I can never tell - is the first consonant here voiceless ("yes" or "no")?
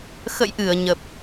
yes